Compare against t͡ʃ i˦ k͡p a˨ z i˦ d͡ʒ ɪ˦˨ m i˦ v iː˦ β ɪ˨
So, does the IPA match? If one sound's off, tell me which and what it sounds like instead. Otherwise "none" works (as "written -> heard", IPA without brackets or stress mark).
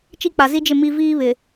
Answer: none